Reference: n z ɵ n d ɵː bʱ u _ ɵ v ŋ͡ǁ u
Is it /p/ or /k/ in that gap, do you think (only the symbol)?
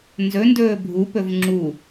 p